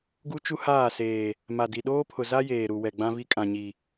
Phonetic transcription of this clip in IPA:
ɡu˦t͡ʃu˦ haː˦˨seː˨ | ma˨di˨ ɗoː˦pʰʊ˨za˦ jeː˨ɾu˨ wɛ˨ɡ͡bã˦vi˦ kʼã˨ɲi˨

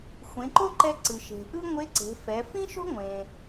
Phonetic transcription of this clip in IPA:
xʷẽ˩˧ǃo˥ǃɛ˧ ǀɯ˩ʃe̤˩ʔɯ˥ŋʷe˧˥ ǀe̤˩˧fɛ˩˧ fĩ˥ʃo̤˥ ŋʷẽ˩

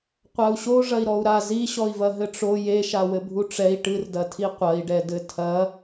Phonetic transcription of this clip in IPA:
qʷau̯ɕo ʐɐi̯ɾɔu̯ɾa ziɕɔi̯vɐ ɦɘʈ͡ʂo jeʃa wɘbʱuʈ͡ʂɛi̯ ʈɨrdɐtʰi qʷɐi̯ɖɛdɘ tʰɐ

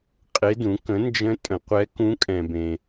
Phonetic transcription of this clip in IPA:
qʼe˧˥dũ˩˥ kə̃˩˥nd͡ʒə̃˧˥ tʼə̃˨˩˦qʷɛ˧˥ kũ˧˥kʼɛ̃˨bẽ˨

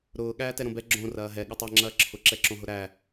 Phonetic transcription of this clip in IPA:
ɾʊː ɠæːtɛɾõbɛ ɡ͡ǁõ rɐːɦɛ ɠɐtˤæ ŋ͡ǁɐːǁʰʊ ǁɛǁõɦʊɾæ

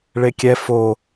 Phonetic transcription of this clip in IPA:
ɭekʲɛ fo

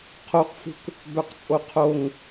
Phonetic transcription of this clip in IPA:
qʰoqfṳk | bœqt͡sʼoqʰoŋ

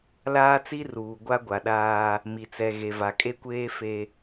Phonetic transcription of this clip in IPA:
laː˦t͡si˦ruː˨ ɡʷa˦ɡʷa˨ɗaː˦ | mi˨t͡sɛ˨ ɣe˨va˨kʼe˦kʷeː˦ fe˦

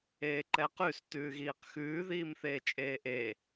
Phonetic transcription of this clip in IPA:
eːǃɛqʉs tʉːɣiːqxʉː ðiːmθeːt͡ʃʼeːʔe

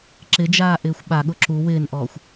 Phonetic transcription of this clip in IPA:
ǁɪd͡ʒaː ʔɪːxʷɓaɠʊ ǁu wɪːnʔɔːxʷ

